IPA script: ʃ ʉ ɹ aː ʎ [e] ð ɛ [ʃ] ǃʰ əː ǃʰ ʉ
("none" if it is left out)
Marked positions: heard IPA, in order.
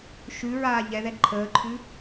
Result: ɛ, none

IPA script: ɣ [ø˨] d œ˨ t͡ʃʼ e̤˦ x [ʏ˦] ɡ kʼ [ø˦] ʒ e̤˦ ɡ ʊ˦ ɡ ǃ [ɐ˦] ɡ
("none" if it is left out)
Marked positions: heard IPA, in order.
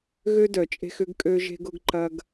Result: ø˦, ʏ˦, ø˦, ɐ˦

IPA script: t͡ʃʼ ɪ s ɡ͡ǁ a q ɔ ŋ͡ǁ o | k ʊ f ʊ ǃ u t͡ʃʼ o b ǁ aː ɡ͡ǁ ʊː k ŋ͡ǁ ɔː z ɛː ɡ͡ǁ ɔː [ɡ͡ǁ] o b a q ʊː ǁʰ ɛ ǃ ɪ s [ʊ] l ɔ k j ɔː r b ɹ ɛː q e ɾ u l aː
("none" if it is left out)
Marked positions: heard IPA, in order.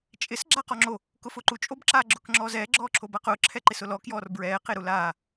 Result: ǁʰ, ʊ

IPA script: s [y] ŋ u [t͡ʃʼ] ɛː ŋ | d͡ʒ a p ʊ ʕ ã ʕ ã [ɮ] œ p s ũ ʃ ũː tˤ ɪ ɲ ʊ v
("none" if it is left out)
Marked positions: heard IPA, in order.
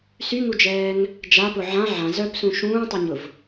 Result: y, d͡ʒ, z

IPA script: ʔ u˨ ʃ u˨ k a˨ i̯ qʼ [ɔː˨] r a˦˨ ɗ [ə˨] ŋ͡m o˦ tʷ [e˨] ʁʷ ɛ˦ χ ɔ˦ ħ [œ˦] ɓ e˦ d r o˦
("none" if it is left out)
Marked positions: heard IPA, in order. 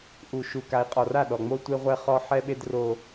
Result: ɔ˨, ɔ˨, e˦, ɛ˦

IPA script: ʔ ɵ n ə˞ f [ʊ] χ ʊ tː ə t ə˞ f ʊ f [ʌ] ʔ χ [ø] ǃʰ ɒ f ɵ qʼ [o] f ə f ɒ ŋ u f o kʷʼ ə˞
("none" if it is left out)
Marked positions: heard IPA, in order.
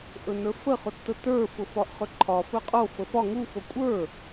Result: ə, ɒ, ɵ, o

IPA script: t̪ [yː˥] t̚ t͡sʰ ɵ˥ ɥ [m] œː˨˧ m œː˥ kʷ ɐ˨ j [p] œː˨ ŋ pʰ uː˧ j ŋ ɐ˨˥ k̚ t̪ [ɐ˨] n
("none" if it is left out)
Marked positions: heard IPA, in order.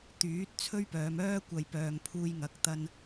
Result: yː˨˥, p, p, ɐ˥

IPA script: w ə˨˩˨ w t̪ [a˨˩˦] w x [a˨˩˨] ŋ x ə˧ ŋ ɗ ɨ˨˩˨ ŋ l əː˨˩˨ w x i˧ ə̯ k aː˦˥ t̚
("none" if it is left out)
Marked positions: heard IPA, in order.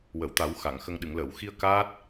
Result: a˨˩˦, a˨˩˨

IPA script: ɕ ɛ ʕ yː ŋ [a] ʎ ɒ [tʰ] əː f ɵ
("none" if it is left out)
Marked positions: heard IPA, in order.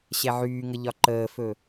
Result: ə, ǃ

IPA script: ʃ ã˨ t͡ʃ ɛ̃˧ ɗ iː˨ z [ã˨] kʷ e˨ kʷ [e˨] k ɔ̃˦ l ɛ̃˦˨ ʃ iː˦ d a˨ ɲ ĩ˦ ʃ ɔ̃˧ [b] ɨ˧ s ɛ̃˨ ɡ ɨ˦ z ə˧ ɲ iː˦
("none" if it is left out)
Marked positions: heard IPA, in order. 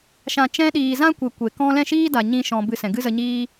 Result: ã˦, e˨, b

